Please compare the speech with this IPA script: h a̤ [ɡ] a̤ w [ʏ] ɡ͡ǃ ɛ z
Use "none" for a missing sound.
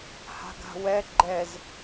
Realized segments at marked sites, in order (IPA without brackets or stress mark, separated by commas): ɡ, ɛ